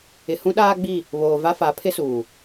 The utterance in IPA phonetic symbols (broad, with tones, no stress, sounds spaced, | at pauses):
ɪ˨ h ũ˦ ɗ aː˦ ɡ͡b i˦˨ | β oː˨ v a˦ f a˨˦ pʰ ɪ˦ s uː˨